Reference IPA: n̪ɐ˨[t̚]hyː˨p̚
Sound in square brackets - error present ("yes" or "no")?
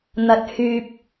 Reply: no